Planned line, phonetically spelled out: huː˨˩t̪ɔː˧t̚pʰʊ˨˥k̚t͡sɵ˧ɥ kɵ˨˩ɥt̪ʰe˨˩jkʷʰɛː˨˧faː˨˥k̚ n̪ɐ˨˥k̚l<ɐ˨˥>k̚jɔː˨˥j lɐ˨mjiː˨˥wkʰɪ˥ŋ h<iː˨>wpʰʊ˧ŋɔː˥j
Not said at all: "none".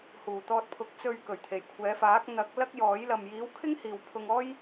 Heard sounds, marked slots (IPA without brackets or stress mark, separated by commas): ɐ˥, iː˨